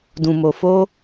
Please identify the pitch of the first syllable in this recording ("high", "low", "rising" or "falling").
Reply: low